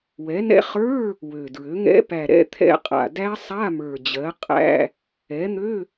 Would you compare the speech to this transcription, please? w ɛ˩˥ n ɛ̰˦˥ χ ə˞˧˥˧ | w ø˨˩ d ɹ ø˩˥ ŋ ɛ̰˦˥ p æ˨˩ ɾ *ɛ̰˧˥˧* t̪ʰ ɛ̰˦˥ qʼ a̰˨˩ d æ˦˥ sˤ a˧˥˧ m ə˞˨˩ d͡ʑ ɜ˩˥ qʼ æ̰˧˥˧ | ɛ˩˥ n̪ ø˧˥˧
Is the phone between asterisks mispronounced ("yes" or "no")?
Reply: no